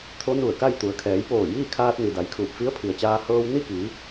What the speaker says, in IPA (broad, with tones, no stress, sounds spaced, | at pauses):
t̪ʰ o˧˥ n u˧˩ ə̯ k a˥˨ j t̪ u˩˧ ə̯ kʰ ɛː˩˧ j p oː˧˩ j iː˥˨ kʰ aː˧ t̚ n i˩ d a˩˧ j kʰ uː˧˩ p̚ f i˧˥ ə̯ pʰ i˩ ə̯ t͡ɕ aː˧ h ɤː˧ w n i˥˨ k iː˩˧